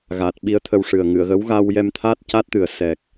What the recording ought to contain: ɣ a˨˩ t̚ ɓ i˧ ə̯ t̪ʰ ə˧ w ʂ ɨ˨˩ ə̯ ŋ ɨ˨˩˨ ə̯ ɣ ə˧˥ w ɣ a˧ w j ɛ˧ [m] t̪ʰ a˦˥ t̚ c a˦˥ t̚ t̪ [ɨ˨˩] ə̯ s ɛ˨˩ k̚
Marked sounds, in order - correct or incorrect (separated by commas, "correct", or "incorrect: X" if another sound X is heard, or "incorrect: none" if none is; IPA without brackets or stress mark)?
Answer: correct, correct